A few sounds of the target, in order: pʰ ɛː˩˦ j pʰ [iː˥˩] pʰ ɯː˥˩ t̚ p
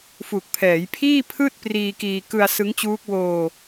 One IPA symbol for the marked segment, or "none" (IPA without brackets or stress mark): iː˥˩